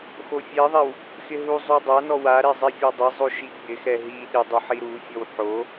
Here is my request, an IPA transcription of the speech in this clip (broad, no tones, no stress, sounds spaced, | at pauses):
x o fʲ ɛ ðˤ ɛ w | x ɪ ɦ u zˤ u dˤ a n ɔ w a ɾ ɛ zˤ ɛ fʲ ɔ dˤ ɪ zˤ o ʃ i ɡ͡b ɪ x ɛ ɦ i ɗ ɪ dˤ o ħ i ɾ u fʲ ɔ w ħ o